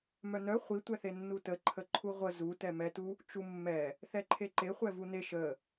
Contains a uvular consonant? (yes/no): yes